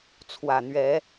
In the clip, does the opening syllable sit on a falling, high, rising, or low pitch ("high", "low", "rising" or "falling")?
low